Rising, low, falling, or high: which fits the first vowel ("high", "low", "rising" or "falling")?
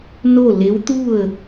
falling